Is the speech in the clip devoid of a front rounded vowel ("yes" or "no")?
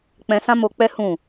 yes